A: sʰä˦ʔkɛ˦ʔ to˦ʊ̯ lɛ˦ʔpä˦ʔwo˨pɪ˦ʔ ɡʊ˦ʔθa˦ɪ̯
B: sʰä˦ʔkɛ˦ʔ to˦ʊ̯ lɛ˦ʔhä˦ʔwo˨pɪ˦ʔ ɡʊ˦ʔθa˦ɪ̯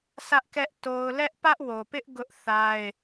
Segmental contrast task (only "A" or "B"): A